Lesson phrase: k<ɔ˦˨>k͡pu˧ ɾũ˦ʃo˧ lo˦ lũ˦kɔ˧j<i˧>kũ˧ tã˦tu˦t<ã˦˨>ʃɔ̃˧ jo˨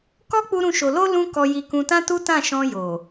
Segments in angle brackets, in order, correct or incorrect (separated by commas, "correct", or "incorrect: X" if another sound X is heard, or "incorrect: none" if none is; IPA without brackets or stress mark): incorrect: ɔ˦, correct, correct